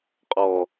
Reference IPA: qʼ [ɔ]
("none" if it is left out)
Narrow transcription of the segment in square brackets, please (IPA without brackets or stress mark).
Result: ɔ